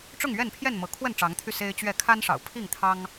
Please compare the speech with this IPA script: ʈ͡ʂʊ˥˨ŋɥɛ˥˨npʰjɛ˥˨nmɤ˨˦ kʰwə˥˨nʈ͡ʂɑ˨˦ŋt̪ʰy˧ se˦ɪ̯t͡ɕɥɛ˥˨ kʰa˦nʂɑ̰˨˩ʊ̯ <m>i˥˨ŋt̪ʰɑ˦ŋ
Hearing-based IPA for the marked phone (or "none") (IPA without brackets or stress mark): pʰ